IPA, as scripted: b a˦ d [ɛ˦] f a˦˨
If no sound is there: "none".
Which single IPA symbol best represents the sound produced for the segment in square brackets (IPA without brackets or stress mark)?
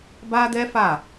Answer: ɛ˦